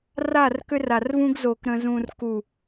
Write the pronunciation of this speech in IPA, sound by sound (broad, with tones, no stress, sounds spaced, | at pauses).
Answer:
r a˦˨ r k ʏ˦ r a˨ r v ũ˦ ɡ z o˨ k ɾ ə̃˦ z ũ˦ r k u˦˨